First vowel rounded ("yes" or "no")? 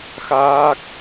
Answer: no